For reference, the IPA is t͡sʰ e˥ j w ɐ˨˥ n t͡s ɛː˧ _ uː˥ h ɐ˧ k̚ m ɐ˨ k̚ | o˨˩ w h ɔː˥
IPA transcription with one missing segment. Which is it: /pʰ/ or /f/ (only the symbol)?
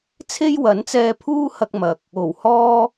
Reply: pʰ